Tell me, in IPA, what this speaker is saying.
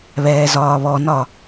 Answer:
βɛːzɒːβɔnɒ

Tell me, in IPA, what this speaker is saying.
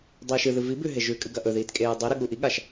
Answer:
dˤiːʃɨðɨ vi bʉ ɦeʒʉkʼɨ ɡɐʔɵðiːt kʼeːdˤiɾɨ ɠuʔiɠaʃ

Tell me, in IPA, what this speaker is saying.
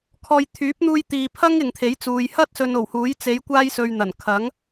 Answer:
kʰɔː˧j t̪ʰyː˨˥p̚n̪uː˧jt̪iː˨pʰɐ˥ŋ ɪ˨ŋt̪ʰe˨˥jt͡suː˨j hɐ˥t̚ sɵ˧no˨˩whuː˨˥j t͡se˨˧jkʷaː˧jsɵ˨ɥ n̪ɐ˨˩n kʰɐ˨˥ŋ

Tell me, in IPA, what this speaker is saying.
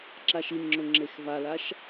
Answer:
ǁaʃinŋ͡ǁʊ ŋ͡ǁexvalaʃ

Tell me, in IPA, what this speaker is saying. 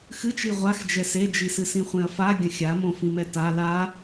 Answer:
xɨt͡ʃi ʁʷax d͡ʒɛsed͡ʒisɨ sĩχʷẽɐ̯fa ɡʲɐ̃xʲamõfĩ mɛta la

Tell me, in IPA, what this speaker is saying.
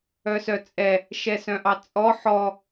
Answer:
œsœt͡sʼɛ | ʃɛsœ̃ʔɑt͡sʼɔ ħɔ

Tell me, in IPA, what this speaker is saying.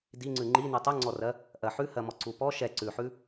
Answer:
diŋ͡ǀʉ ŋ͡ǃi nutˤuŋ͡ǀɔrɜ | ʔɜħʉhɜmɔ ǀupɔ ʃɛ ǀʉħʉ

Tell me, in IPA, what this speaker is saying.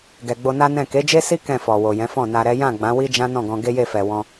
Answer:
ɡɛ˨ ɡ͡bo˧na˦nɛ̃˦˨ ke˨˦d͡ʒe˦si˦ kɛ̃˦˨fɔ˨wo˨ jɛ̃˨˦fɔ̃˦˨na˧ɾɛ˦ jã˦˨ ɡ͡bã˨˦wi˦ d͡ʒã˦nɔ̃˦˨ɡɔ̃˧ ɡe˦je˦˨fɛ˨ wɔ̃˧

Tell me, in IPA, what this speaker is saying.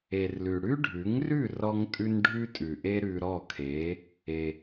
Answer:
e˩rlʉ˩ ɽʉ˥ɖʱʉ˩˥ŋrʉ˥˩ rɔ˧ŋtʼʉ˧n ɖʱʉ˥tʼʉ˩ʔe˥ ɾʉ˧ɾɔ˥˩ kʰe˩˥ | e˩

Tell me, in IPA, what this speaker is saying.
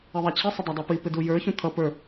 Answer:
ɛðˤæt͡ɕʰisˤə dˤædˤɛpipɪ dujə˞çũ t̪ʰʌ pə˞

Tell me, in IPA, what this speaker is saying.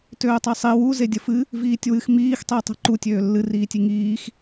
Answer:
tøːtˤesˤi wu zedʲəfɨ | viːtʲwɨx miːx tˤiːtˤe̤ǃu tʲøːlːɨ riːtʲiŋiːx

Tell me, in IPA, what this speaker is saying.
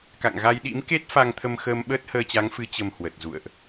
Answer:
ka̰˧˨ŋɣa˧jɗḭ˧˥mke˦˥t̚ fa˧ŋt̪ʰə˧mxəː˧m ɓəː˦˥t̚həː˧t͡ɕa˨˦ŋfɨ˨˦ t͡ɕə˧mhwə˨˩t̚zṵ˧˨ə̯ʔ

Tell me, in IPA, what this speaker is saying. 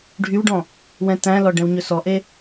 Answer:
ɖʱywɖɔ̃ | wɛ̃tæ̃lɔ ɖɛ̃wɲɵsɔʔe

